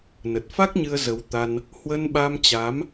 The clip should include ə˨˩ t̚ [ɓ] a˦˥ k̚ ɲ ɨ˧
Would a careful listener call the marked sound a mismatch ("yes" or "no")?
yes